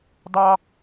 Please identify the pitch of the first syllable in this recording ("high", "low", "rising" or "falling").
high